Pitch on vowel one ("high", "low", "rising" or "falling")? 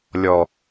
low